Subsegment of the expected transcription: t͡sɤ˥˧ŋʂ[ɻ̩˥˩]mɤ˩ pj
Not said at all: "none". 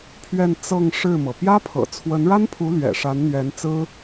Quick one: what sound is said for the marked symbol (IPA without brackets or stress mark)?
ɻ̩˥˩